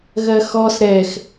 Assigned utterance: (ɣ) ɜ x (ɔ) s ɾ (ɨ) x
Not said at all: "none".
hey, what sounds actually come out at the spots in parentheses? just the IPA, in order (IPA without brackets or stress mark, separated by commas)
ɣ, ɔ, ɛ